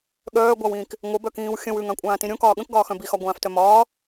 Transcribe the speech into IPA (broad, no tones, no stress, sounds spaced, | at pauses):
ɠ œː ɡʷ a w ĩː k | ŋʷ ə b œ k ĩː w xʲ ə̃ w ʉ ŋ ã kʷʼ ãː t ĩ ɾʲ õ k ɒː ɠ ə̃ k ɡ ɒː x œ̃ b i x ɒ ɡʷ ãː f t œ m ɒː